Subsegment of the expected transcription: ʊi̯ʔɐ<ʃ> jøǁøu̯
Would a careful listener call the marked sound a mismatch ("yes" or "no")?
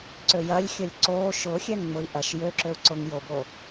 no